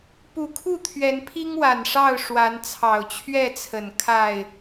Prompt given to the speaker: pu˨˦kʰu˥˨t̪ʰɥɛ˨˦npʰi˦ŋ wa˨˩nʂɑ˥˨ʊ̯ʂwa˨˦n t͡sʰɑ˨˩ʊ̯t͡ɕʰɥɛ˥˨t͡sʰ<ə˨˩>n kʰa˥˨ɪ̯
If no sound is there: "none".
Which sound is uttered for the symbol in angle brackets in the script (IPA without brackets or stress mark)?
ə˨˩